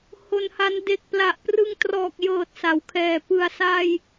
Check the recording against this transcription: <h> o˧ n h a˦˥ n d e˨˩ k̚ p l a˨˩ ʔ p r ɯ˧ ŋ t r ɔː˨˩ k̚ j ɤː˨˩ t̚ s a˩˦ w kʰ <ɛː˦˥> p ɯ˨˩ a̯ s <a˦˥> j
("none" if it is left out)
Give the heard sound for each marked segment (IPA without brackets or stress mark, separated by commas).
h, ɛː˨˩, a˧